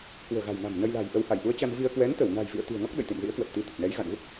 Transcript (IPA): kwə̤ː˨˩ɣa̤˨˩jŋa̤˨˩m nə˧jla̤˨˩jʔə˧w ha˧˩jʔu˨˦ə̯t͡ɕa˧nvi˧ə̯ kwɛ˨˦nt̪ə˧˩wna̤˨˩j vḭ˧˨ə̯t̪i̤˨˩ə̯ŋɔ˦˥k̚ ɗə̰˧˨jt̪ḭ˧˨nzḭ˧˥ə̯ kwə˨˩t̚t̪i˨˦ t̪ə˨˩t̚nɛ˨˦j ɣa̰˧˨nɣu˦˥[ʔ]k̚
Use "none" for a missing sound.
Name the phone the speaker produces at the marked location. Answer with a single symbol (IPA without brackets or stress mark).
none